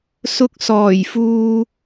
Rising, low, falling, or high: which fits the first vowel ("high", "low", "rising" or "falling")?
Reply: rising